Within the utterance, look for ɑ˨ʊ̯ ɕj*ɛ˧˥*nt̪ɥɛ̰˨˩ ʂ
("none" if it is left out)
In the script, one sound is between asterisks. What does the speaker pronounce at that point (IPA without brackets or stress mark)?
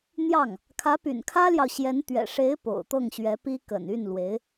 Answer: ɛ˧˥